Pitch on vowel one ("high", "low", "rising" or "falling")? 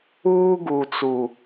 high